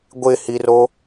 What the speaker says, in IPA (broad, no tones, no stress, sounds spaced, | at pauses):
ɡʷ ɪ h i r o